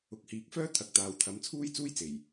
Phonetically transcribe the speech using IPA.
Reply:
ʊ˨˥ k̚ h iː˨ k̚ f œː˥ t̪ʰ ɐ˨˥ k̚ t̪ aː˨ w t̪ʰ ɐ˨˧ m t͡sʰ uː˥ j t͡s uː˥ j t͡s e˨˩ j

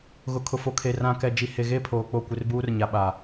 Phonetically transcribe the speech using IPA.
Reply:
ɣ ʊ˨ kʰ ʊ˨ f o˨ kʰ e˨ r ã˨ k ɛ˨ d͡ʒ i˨ h e˨ ɣ e˦˨ pʰ oː˨ k͡p o˦˨ kʷ ɪ˦ r b uː˦ r ɲ a˨ ɓ a˨

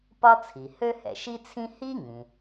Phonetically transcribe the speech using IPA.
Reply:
p ɒ˥ t͡sʰ i˩ h ø˥ h ɛ̰˩ ʃ i˥ t͡sʰ ĩ˥ h i˥ ŋ ĩ˩

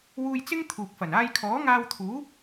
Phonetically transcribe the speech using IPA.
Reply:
w uː˧ j t͡s ɪ˥ ŋ t̪ʰ uː˨ k̚ f ɐ˨˩ n aː˧ j kʰ ɔː˨˥ ŋ aː˧ w t̪ʰ uː˨˥

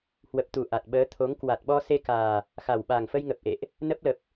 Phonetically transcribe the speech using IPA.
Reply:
h w ə˨˩ p̚ t̪ u˨˩ ʔ a˨˩ t̚ ɓ əː˨˦ t̪ʰ o˨˦ ŋ k w a˨˩ t̚ ɓ ɔ˧ s e˧ k aː˨˩ | x a˨˩ w ɓ aː˨˩ ŋ f ə˧ j ŋ ə˨˩ p̚ ʔ ḛ˧˨ ʔ | n ə˦˥ p̚ l ə˨˩ p̚

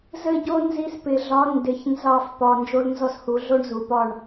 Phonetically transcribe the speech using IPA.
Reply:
z ɘ˦˨ ɟ o˦ n z i˦ s p ɪ˨˩˦ ɮ ɒ˨˥ n d ɪ˨˩˦ ç n z ɑ˦˨ f p ɒ˨ n d͡ʒ o˦ l n z ɔ˦ s h u˨˩˦ ɮ o˦ ɳ z u˨ p ɒ˦˨ ɳ

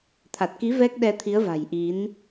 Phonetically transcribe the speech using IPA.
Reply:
t̪ʰ a˨˩ t̚ k i˨˦ v ɛ˦˥ k̚ ɗ ɛ˧ t̪ʰ i˨˦ ə̯ v a̤˨˩ j ʔ i˨˦ n

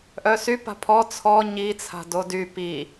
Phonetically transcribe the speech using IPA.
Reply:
ʔ œ s y p a̤ pʰ ɔ t͡sʰ ɔ ɲ i t͡sʰ a̤ d o d y p i

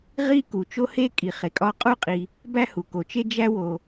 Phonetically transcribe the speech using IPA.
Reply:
ʁ i˥ k u˩ t͡ʃ o˥ h e˥ kʼ i˩ χ e˩ kʼ ɒ˥ qʼ u˥ qʼ i˩ | b æ˥ h u˩ k o˩ t͡ʃ e˥ d͡ʒ æ˥ w o˩

